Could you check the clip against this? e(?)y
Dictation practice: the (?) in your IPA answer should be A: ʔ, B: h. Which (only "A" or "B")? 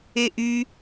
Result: A